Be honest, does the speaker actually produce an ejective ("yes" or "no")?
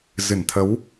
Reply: no